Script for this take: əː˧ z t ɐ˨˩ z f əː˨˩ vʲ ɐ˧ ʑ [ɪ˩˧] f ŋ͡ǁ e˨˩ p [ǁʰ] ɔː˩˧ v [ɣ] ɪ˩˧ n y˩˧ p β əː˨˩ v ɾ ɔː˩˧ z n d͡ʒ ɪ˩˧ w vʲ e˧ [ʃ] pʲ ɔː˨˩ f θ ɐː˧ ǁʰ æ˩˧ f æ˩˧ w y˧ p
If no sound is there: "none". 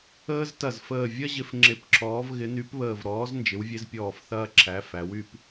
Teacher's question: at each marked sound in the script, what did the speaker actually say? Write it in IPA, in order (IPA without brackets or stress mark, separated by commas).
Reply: ɪ˩˧, ǁʰ, ɣ, z